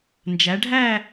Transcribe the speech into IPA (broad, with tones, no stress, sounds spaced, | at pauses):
n d͡ʒ æ˨˦ ɖʱ æ˥˧